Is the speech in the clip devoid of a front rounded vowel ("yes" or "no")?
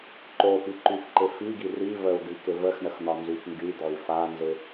no